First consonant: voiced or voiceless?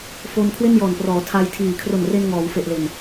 voiceless